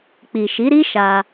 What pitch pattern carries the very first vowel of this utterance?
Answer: low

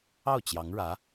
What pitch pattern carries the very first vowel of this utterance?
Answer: falling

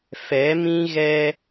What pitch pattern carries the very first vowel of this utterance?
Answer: rising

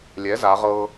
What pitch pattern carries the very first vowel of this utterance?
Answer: rising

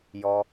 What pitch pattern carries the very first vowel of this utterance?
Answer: high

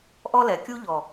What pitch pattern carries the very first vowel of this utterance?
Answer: high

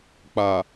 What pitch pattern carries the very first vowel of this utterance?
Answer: low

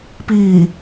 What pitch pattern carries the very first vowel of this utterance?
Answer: low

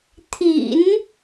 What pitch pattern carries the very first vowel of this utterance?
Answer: low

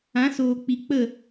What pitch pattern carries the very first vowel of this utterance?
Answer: rising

